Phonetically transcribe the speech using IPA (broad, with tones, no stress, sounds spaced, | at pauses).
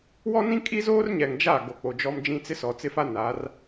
w ɔ˦ n ĩ˦ kʼ i˦ z oː˦ r ɲ ɛ˨ ŋ d͡ʒ a˦˨ ɡ o˨ k͡p o˨ d͡ʒ ɔ˦ m d͡ʒ ĩ˦ t͡s ɪ˦ s ɔ˨ t͡s ɪ˦ f a˦ n a˨˦ r